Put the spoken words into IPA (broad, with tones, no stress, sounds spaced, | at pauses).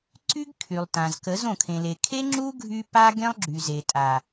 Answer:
ǀ y˦ ɡ kʰ y˨ lˠ t ã˨ z k ə˨˦ z õ˨ kʰ ẽ˨ l e˨ kʰ e˦ ŋ͡ǁ u˦ ɡʱ y˧ p a˧ ɡ ẽ˦ lˠ ɡ͡ǁ y˨ z e˨ tʼ a˨